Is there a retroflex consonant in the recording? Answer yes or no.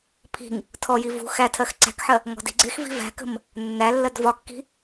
no